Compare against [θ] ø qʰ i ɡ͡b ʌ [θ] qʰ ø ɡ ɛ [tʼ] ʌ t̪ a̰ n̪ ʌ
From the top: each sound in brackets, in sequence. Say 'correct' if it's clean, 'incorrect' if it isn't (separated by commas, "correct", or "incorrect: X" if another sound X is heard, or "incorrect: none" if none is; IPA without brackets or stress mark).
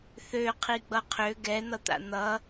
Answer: correct, incorrect: none, incorrect: n̪